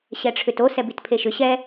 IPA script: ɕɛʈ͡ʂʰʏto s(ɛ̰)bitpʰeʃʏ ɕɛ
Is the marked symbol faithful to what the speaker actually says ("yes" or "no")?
no